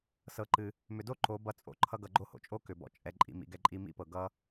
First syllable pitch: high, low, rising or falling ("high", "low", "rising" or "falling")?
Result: low